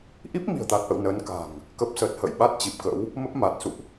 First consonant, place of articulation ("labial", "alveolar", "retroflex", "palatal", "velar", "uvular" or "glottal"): glottal